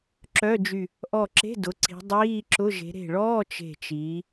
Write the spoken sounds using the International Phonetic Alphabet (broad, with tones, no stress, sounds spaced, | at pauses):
ǁ œ˧˥˧ d͡ʒ y˧˩ | ʔ ɔ˧˩ ǁ e̤˧˥˧ d ʊ˩˧ ǀ i̤˩˧ dˤ iː˧˥˧ ǁ ʊ˧˥˧ ʒ e̤˩˧ ɾ e̤˧˩ ɭ ɔː˧˥˧ t͡ʃ e̤˧˩ t͡ʃ iː˩˧